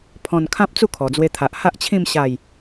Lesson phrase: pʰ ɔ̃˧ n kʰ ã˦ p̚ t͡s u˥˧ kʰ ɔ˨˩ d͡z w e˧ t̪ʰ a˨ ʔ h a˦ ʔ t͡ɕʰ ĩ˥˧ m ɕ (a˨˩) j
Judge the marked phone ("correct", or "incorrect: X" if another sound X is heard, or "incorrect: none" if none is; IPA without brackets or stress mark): incorrect: a˥˧